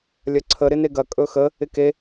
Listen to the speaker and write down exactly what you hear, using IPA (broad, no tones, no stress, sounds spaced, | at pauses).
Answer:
lʲ ɐ ǀʰ ə ɾ ɪ n e ɡ ɐ kʼ ɵ x ə | ɪ k e